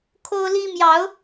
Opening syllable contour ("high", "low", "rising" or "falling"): high